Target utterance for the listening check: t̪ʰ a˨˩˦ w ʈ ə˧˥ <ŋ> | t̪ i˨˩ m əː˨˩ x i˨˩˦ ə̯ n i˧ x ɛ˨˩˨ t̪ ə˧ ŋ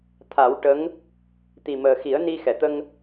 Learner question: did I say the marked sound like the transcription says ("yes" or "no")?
yes